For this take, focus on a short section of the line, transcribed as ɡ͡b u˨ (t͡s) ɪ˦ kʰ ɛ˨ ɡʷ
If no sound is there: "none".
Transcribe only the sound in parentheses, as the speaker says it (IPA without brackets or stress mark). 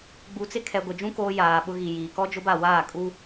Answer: t͡s